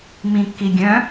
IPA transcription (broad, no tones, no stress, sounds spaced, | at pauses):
m ĩ kː i ɡʲ œ̃